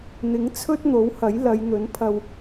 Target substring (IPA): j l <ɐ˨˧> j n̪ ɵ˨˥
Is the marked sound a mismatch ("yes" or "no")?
no